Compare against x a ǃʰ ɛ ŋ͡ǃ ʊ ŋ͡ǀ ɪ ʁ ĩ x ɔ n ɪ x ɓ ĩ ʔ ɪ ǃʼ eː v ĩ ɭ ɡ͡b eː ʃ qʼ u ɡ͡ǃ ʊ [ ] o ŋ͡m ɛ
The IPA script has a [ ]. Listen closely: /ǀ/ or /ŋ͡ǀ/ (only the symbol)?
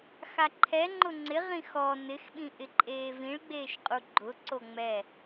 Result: ǀ